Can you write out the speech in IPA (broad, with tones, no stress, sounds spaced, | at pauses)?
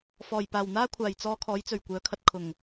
f ɔː˨˩ j p aː˨˩ w n̪ aː˥ kʷʰ aː˨˩ j t͡s ɔː˧ kʰ ɔː˨˥ j t͡s ɵ˨˩ ɥ kʷ œː˨˥ kʰ ɐ˧ t̚ kʰ ʊ˨˩ ŋ